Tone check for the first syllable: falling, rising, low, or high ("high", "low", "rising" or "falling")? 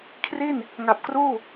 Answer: falling